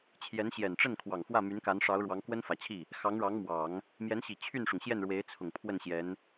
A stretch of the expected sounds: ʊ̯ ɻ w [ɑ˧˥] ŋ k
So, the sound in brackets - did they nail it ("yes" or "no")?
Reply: yes